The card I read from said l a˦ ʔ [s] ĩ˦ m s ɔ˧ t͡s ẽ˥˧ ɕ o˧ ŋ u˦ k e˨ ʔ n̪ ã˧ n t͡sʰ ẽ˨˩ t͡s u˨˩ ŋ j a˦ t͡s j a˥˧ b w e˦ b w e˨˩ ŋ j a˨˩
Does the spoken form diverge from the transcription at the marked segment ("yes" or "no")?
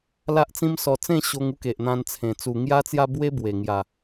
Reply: yes